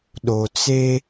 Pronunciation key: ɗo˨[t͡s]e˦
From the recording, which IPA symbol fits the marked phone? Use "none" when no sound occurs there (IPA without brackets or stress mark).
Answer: t͡s